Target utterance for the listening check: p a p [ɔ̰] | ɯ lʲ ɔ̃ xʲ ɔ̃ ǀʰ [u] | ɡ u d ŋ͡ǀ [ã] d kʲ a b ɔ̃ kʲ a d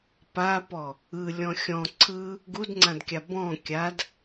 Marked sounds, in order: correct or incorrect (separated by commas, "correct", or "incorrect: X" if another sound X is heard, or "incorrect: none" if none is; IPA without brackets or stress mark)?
incorrect: ɔ, incorrect: ɯ, correct